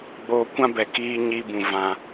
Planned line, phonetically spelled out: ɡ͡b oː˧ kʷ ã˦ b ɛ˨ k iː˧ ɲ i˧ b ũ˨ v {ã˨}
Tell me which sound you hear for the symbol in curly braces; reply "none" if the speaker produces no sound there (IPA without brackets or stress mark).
ã˨